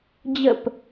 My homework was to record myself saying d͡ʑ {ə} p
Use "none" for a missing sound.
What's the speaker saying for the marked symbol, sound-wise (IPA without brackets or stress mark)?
ə